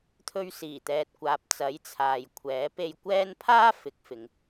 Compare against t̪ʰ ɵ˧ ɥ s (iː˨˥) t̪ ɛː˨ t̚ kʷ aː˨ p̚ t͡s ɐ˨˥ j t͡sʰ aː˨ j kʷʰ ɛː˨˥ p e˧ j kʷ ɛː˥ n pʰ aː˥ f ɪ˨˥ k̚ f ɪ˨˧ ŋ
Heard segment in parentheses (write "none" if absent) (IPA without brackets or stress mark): iː˨˩